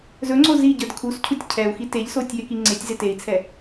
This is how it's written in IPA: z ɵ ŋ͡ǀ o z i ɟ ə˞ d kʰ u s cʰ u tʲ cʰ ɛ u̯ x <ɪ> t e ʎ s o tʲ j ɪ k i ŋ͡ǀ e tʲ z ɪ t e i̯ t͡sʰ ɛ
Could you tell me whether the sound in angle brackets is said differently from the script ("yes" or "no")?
yes